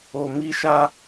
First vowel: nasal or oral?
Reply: oral